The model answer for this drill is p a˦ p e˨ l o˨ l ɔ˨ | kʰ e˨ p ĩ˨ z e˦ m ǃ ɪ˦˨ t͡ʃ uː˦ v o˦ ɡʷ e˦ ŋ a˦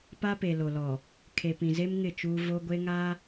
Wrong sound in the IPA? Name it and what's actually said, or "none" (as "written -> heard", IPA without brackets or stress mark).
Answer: ǃ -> ŋ